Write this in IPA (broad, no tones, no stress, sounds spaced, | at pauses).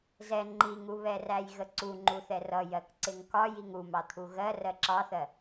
z ɛ ŋ͡ǃ i ŋ u β ɛ r æ j ɣ ə ǀ u ŋ͡ǃ u θ ɛ r ʌ j ɜ k ǀ ɪ ŋ k ɒ j i ŋ u m ɑ t̪ʰ u ɣ ɜ r ɜ ǁ ɑ θ ɜ